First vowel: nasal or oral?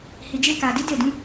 oral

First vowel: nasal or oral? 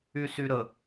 oral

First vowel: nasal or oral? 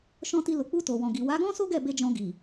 nasal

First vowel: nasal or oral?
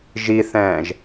oral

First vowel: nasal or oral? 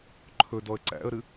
oral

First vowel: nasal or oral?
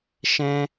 nasal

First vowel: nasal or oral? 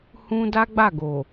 nasal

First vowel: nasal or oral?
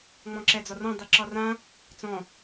nasal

